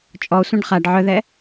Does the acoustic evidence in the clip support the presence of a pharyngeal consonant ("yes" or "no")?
yes